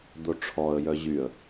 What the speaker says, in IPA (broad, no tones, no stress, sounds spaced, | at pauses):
d̪ o ʈ͡ʂʰ ɔ ə̯ j œ ʑ y ə̯